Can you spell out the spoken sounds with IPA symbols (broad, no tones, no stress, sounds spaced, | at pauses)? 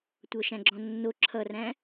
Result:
tʷ ɤ ʃ æ̃ ɡ͡ǁ ɔ̃ nː o ǁʰ ʌ r æ̃